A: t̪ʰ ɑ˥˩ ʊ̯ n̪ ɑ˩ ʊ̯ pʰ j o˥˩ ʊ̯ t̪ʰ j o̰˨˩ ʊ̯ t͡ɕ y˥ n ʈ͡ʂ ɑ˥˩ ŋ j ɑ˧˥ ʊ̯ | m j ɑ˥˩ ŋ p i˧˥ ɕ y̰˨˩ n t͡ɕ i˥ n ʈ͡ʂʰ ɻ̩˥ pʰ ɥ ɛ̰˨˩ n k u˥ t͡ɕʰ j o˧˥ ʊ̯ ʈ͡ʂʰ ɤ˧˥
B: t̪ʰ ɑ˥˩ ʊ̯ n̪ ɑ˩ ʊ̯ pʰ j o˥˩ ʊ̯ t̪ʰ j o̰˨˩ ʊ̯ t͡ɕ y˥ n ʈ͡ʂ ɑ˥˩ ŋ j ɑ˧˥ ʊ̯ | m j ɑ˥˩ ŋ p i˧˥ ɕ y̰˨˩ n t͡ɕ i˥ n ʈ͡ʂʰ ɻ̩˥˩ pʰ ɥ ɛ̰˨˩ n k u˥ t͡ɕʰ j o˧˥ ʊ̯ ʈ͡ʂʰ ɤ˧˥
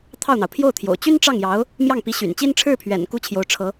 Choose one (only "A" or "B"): B